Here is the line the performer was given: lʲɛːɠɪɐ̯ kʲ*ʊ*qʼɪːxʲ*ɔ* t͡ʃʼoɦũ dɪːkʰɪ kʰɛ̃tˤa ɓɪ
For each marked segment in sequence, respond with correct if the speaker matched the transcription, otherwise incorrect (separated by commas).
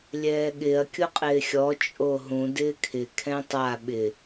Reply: correct, correct